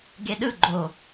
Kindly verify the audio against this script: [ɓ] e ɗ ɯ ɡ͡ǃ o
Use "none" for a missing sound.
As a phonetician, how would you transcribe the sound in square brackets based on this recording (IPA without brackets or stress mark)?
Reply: ɡ